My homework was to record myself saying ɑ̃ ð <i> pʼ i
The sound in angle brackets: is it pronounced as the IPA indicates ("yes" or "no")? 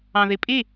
yes